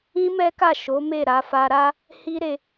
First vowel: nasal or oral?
nasal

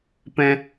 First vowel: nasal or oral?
nasal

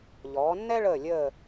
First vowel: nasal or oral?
oral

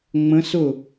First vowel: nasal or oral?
nasal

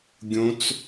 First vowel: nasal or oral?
nasal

